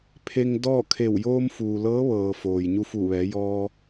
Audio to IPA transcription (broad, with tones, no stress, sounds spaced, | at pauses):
pʰ e˧ ŋ d ɔː˥˨ kʰ e˧˩ w j oː˧ m f uː˩ l ɤː˧˥ ʋ ɤː˩ f oː˩ j ɲ u˧ f u˧˩ ʋ ɛː˩˧ j ɔː˧